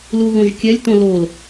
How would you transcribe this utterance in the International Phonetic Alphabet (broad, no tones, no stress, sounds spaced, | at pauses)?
l u ɣ õ ʒ kʲ æ lʲ t õ l o l